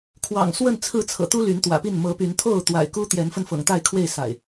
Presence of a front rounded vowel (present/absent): present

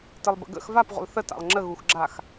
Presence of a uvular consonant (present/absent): present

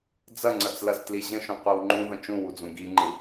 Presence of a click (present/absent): present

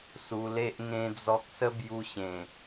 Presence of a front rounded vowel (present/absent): absent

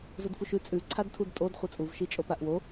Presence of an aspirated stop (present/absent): present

